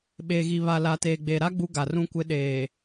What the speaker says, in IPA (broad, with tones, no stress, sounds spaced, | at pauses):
ɓ eː˨ ɣ i˨ β a˨ l a˨ t eː˨ ɡ͡b eː˨ ɾ a˦ ɡ͡b u˦ ɡ a˨ r ũ˦ kʷ ɪ˦ ɗ eː˨